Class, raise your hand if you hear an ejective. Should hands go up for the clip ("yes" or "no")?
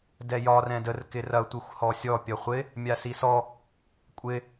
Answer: yes